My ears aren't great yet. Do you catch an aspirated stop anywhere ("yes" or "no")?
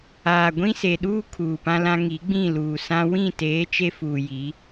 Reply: yes